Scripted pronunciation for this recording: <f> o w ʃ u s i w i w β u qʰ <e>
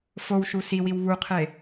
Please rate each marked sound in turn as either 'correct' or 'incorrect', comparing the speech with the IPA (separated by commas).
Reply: correct, correct